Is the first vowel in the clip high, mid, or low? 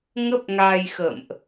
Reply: mid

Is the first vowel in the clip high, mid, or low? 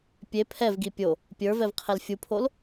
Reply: mid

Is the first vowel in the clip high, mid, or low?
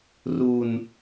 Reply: high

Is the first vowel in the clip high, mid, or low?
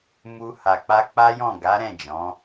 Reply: high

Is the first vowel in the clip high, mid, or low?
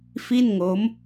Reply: high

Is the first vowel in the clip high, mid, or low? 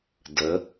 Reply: mid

